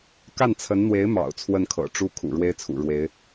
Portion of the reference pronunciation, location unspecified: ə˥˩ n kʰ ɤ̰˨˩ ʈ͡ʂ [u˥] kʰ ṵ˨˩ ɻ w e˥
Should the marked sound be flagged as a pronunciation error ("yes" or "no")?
no